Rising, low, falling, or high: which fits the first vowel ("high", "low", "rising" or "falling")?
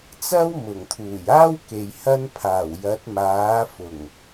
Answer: high